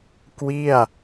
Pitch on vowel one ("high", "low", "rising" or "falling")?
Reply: falling